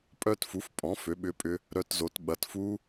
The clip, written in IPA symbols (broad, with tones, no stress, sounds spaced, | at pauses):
pʼ œ˦˥ t f u˩˥ f pʼ ɔ̃˩˥ f ø˩˥ ɓ ʏ˦˥ pʼ ʏ˦˥ | ɾ œ˦˥ t z o˩˥ t ɓ ɐ˩˥ t f u˦˥